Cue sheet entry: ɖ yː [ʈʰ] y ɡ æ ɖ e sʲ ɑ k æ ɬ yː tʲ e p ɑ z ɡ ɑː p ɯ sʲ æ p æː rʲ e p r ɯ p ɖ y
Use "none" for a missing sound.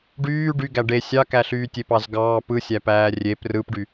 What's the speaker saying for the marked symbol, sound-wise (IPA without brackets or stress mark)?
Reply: ɖ